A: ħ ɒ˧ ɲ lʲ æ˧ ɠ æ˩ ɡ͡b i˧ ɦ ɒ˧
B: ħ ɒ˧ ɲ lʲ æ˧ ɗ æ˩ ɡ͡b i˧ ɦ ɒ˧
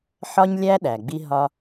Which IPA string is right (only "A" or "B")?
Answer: B